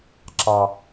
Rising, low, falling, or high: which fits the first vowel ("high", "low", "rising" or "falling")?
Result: low